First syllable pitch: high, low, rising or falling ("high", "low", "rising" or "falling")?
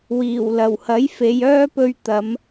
low